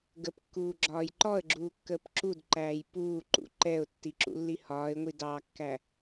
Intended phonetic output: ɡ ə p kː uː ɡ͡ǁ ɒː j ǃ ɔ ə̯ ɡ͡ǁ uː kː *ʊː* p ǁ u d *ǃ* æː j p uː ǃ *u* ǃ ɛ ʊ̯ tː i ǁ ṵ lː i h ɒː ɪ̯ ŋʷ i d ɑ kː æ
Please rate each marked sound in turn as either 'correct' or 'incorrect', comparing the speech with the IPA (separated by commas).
incorrect, correct, incorrect